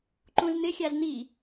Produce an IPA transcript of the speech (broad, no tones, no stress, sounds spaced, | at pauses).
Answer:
ǃ ũ z n̪ ɪ xʲ a z n̪ i